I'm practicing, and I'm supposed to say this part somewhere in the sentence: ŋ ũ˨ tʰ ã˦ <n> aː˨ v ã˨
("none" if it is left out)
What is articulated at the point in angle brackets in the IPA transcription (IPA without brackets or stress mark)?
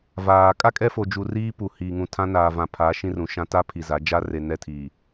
n